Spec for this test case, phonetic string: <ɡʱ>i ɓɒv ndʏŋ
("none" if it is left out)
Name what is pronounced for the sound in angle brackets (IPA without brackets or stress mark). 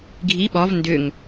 ɡʱ